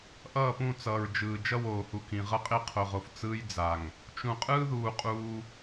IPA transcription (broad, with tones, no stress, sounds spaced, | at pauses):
ʔ ʌː˦˨ p ũ˦˨ t͡s ʌː˨ ɹ d͡ʒ ɯː˨ d͡ʒ ʌ˦ w oː˨ h u˨ k ĩ˨ ʁ ʌ˦ qʼ e˦ qʰ o˨ ʁ o˨ f t͡s ɯː˦ j d͡z a˨ ŋ | t͡ʃ ũ˨ qʼ ɯː˦ ð uː˨ qʼ uː˦